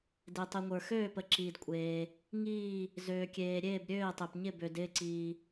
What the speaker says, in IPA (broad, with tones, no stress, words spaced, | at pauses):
de˨tˤi˨ŋʷə˞˨ xøː˦˨pə˨ǁiː˨d kʷʼeː˨ | ŋiː˦˨ | zøː˨kʲeː˨ ɾʲeː˦˨bɾʲøː˦˨ɪ̯tˤe˨pɲɪ˦˨ bø˨dɪː˦˨ǀiː˨